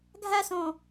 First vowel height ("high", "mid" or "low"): low